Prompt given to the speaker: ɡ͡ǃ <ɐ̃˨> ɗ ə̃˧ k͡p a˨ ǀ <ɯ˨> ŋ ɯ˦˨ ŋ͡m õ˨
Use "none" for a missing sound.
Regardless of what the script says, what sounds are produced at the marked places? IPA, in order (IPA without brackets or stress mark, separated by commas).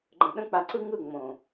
ə̃˨, ɯ˧